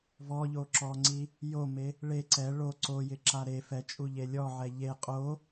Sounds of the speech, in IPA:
v ɔ ʎ o ǁ ɔ ŋ͡ǀ i | j o m e | ɭ e ǀ ɛ ɭ o ǀ o j ɪ ǁ a ɾ e f ɛ t͡ʃʼ u ʎ e lʲ ɔ ʕ ɛ ʎ e qʼ o

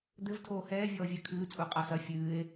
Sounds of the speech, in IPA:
d̪ ɘ v tʰ oː h ɛː vʲ ɔː vʲ ɨ kʰ ɨː t͡sʼ u qʼ a s ɐ fʲ ɨː e̯

